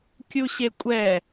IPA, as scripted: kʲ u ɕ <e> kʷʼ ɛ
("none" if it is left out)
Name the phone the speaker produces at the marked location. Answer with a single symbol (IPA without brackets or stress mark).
e